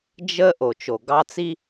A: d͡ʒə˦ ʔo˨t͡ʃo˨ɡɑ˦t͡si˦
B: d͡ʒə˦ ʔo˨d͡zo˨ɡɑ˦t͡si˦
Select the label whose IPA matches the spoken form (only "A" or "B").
A